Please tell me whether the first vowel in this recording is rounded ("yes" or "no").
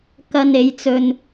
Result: no